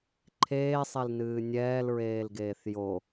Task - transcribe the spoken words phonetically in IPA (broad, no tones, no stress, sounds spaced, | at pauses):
ǃʰ eː sˤ e l n ɨː nʲ ɛː l ɹ eː l ɡ eː θ j o